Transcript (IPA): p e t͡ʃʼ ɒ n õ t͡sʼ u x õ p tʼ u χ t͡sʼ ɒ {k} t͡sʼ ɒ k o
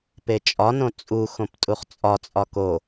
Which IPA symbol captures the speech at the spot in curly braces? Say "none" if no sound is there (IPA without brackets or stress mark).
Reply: none